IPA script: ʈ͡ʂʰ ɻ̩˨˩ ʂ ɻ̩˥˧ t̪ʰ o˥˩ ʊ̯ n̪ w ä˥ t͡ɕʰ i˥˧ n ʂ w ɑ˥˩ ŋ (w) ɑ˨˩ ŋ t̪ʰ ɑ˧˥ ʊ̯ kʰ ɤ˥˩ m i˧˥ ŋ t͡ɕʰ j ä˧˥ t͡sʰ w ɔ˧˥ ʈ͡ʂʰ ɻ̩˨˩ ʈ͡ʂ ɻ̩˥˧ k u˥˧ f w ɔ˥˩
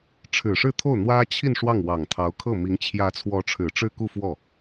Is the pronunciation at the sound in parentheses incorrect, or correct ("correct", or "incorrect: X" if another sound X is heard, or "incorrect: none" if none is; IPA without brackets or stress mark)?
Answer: correct